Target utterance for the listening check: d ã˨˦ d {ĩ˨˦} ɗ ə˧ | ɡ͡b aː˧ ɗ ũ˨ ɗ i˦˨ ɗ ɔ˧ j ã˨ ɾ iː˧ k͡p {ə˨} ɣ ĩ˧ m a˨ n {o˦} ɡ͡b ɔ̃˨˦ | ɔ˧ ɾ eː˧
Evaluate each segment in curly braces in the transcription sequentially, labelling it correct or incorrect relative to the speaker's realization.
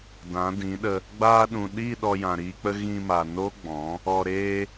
correct, incorrect, correct

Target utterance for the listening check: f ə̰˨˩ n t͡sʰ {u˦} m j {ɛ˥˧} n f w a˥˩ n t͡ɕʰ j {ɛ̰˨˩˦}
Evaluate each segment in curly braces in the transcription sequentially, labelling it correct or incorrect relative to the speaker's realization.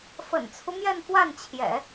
correct, correct, correct

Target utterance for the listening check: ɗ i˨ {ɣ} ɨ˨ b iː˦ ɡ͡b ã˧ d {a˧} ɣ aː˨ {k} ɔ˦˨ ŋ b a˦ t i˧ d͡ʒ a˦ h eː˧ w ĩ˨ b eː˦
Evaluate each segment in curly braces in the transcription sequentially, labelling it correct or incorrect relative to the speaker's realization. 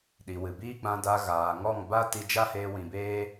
incorrect, correct, incorrect

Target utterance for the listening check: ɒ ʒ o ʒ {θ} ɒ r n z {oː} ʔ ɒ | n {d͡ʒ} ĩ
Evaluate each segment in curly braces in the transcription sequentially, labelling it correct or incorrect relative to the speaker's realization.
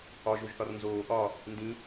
correct, correct, incorrect

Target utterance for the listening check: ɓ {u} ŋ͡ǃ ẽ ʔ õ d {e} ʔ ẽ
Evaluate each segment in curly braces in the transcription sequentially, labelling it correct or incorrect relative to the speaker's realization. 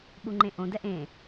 correct, incorrect

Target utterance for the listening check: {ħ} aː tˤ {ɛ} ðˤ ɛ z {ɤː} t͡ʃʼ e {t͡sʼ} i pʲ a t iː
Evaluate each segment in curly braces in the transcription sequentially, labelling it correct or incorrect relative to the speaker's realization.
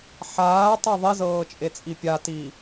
correct, correct, correct, correct

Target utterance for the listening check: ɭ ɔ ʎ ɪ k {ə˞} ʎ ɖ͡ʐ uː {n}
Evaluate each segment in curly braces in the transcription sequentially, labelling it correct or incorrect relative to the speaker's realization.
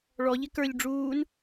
correct, correct

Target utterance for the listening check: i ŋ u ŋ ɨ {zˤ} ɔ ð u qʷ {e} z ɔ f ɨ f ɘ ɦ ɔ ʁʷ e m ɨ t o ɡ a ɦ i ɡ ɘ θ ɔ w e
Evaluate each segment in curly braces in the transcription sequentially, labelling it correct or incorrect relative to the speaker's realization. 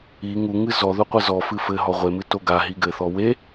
incorrect, incorrect

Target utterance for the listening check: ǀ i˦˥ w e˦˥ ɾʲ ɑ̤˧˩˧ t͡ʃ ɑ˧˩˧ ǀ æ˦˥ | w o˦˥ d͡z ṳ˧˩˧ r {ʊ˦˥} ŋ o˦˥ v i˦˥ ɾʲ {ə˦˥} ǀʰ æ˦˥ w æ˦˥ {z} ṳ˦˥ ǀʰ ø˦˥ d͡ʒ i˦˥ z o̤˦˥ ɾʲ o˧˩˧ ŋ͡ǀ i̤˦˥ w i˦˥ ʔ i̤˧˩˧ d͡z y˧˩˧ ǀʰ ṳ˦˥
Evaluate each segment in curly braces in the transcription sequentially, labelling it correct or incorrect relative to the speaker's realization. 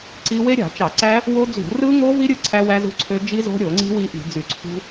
incorrect, incorrect, correct

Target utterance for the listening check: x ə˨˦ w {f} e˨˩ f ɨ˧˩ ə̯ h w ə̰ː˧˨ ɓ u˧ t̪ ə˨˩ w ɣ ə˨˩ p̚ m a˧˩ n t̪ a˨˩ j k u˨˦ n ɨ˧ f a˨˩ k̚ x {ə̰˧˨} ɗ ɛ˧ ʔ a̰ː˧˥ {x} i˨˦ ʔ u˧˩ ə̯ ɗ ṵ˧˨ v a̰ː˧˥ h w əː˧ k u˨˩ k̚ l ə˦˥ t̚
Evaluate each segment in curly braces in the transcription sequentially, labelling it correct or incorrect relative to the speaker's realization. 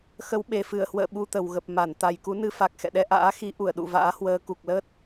incorrect, incorrect, correct

